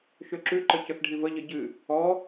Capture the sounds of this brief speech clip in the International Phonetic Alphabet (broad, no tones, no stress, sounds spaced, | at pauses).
ʃ ø ǁ ʉ ǃ ə c ə x ɖʱ i v ə ʎ ə ɟ ɨ | ɔ